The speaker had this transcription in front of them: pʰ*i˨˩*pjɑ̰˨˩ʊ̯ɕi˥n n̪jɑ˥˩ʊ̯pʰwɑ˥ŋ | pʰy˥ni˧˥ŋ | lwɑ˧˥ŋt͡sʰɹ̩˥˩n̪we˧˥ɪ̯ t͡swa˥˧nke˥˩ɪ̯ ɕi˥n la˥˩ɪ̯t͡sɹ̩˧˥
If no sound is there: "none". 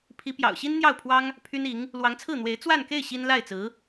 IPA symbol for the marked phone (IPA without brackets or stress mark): i˧˥